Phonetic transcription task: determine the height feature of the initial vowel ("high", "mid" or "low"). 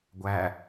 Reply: low